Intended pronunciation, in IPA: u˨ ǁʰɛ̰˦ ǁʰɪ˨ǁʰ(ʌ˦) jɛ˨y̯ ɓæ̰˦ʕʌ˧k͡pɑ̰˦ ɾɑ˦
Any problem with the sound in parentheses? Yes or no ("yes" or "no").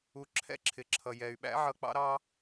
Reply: yes